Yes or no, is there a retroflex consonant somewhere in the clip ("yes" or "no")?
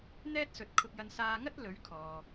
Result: no